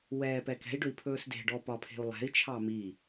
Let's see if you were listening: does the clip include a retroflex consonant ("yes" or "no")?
yes